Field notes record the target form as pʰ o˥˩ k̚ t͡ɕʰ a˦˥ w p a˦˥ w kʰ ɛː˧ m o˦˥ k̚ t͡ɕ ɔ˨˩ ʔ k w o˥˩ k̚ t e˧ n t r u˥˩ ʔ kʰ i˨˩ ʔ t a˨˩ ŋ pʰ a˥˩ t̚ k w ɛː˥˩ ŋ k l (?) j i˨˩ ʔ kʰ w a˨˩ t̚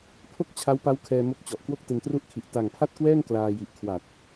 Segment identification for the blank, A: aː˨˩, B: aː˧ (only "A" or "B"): B